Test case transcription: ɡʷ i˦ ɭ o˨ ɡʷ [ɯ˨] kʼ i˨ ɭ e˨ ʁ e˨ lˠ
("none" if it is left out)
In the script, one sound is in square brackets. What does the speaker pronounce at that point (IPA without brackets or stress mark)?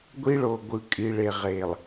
ɯ˨